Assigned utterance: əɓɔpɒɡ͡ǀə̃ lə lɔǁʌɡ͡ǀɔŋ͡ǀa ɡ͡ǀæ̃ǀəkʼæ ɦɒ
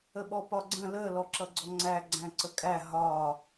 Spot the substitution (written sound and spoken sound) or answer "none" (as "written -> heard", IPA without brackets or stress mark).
a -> æ